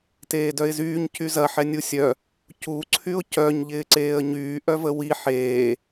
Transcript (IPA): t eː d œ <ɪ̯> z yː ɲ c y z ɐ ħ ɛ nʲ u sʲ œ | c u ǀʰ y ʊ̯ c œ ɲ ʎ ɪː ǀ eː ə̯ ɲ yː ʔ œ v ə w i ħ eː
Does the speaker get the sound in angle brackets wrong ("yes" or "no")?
no